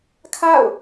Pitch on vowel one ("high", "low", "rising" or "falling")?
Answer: falling